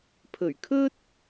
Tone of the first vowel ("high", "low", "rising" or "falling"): low